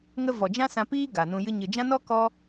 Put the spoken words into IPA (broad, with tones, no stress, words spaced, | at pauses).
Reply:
ŋə˦ vɔ˨d͡ʒã˦sã˧piː˦ ɡa˨nũ˧jɨ˦ ɲɨ˨ d͡ʒã˦nɔ˦ kɔ˦